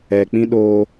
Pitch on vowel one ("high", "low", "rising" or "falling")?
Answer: low